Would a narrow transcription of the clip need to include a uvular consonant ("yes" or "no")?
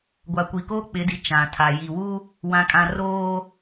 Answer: no